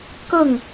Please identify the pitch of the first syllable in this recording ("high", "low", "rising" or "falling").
falling